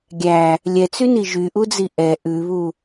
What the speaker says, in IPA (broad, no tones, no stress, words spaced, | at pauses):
ɡʲæ | lʲɛt͡syni ʒyʔud͡zi ʔɛ ʔʉβu